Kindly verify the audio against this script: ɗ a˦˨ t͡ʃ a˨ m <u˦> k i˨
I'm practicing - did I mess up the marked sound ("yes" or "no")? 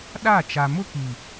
yes